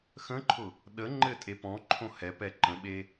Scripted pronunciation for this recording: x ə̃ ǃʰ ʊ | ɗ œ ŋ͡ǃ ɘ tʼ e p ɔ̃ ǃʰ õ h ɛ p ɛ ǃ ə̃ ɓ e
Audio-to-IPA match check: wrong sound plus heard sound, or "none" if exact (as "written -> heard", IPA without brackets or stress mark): œ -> ə